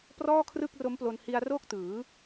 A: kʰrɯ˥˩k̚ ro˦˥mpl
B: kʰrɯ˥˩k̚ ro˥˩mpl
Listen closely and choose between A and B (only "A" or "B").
A